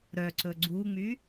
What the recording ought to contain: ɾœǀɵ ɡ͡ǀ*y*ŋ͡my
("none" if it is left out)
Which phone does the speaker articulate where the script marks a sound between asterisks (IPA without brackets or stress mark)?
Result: u